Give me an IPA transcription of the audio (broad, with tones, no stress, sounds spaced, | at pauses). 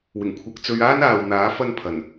w ɪ˨˩ ŋ kʷʰ ɐ˧ k̚ t͡s ɵ˧ ɥ aː˥ n aː˨ w n̪ aː˨˥ f ɐ˥ n pʰ ɐ˨˩ n